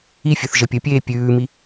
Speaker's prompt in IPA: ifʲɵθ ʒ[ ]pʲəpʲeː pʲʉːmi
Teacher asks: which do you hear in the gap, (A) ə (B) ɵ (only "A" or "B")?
A